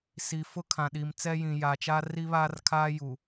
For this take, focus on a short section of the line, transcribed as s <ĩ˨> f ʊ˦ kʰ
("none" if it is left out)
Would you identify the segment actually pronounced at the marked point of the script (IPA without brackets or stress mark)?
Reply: i˨